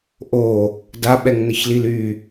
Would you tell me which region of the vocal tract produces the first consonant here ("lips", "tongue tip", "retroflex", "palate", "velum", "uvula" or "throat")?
throat